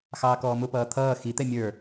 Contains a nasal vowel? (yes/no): no